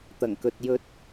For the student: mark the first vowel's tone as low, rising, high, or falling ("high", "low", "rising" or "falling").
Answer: low